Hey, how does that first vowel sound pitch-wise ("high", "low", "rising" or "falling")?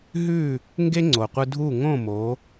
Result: falling